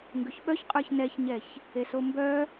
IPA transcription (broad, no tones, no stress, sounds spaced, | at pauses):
ŋ ɡ ʉ ç ɓ œ ç qʼ ə˞ ç n ɛ ç ɲ ɛ ç | e s o m b œ